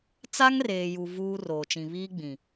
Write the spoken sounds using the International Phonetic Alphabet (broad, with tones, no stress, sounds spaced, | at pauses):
t͡s a˦ ŋ r eː˨ j u˨ v uː˦ r oː˨ t͡ʃ ĩ˨ β iː˦ ɡ͡b ĩ˨